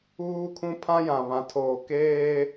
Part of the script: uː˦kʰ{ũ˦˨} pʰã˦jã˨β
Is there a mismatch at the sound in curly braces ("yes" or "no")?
yes